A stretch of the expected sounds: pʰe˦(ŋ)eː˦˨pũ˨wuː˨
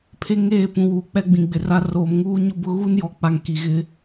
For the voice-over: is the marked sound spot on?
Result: yes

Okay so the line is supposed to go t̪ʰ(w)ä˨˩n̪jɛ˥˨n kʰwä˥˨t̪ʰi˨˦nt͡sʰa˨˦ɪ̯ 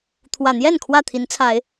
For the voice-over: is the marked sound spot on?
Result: yes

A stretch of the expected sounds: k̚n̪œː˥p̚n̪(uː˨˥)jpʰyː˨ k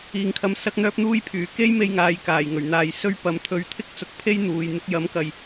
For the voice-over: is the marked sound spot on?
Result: no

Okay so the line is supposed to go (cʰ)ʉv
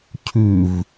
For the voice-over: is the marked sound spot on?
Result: yes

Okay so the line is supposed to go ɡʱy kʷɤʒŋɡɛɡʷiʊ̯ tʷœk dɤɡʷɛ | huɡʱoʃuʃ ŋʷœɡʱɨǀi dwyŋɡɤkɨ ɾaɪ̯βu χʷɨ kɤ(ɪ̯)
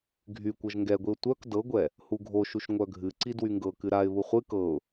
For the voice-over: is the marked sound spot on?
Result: no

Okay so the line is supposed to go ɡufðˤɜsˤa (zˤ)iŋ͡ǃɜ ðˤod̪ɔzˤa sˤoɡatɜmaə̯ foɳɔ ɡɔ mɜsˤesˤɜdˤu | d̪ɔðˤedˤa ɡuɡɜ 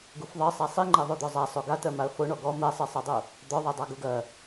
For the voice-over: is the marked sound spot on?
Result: no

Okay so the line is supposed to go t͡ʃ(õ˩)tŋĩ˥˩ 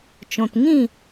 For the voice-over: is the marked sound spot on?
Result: yes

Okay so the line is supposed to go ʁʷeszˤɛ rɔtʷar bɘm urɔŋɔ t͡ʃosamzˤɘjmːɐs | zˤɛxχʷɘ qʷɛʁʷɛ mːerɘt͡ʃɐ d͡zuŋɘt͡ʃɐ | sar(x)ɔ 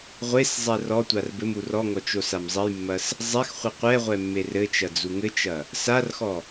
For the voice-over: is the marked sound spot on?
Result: yes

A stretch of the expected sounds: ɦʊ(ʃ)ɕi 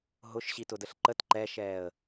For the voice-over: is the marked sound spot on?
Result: yes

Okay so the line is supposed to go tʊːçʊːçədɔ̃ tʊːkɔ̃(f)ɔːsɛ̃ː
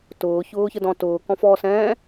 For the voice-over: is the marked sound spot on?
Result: yes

